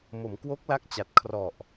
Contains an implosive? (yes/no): no